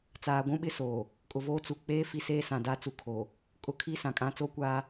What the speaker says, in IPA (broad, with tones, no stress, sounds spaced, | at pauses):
t͡s aː˨ ɡʷ ũ˦ ɓ ɪ˦ s oː˨ | kʼ ʊ˨ v oː˦ t͡s u˨ k͡p eː˦ f i˦ s eː˦ s ã˨ d a˦ t͡s u˨ kʰ o˨ | kʼ ʊ˦ kʰ i˦ s ã˨ kʼ ã˦ t͡s oː˦ kʷ aː˦